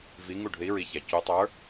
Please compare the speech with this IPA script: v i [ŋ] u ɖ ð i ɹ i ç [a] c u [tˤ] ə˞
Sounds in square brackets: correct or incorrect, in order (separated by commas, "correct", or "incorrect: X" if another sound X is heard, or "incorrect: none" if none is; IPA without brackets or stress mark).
correct, correct, correct